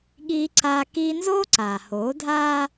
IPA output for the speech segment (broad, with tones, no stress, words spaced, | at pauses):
ɠiː˦ǀaː˦ kiː˦ nzoː˦ǀaː˨hoː˨˦dʱaː˦